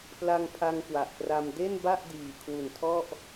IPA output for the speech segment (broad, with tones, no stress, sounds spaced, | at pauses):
p l a˧ ŋ pʰ a˧ ŋ k w a˨˩ ʔ p r a˧ m d e˥˩ n b a˥˩ ʔ d iː˨˩ kʰ w u˨˩ n tʰ ɔ˥˩ ʔ